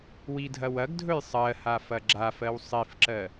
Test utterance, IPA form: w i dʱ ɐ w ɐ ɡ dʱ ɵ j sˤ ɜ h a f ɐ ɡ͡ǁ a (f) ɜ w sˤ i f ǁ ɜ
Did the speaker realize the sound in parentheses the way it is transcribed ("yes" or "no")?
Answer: yes